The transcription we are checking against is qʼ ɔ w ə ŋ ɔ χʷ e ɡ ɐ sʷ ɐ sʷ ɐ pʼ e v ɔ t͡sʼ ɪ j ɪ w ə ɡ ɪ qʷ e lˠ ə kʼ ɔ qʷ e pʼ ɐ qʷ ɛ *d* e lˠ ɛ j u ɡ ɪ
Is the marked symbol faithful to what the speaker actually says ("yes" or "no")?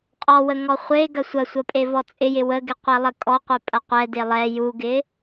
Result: yes